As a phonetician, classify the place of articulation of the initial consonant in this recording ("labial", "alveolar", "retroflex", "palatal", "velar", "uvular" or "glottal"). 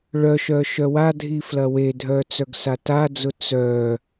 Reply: retroflex